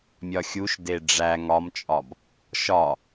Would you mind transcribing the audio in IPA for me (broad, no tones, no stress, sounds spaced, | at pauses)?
mʲ ɒ xʲ u ʃ d e ɖ͡ʐ æ ŋ ɒ m t͡ʃʼ ɒ b | ʃ ɒ